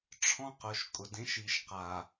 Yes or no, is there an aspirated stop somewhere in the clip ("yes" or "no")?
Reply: yes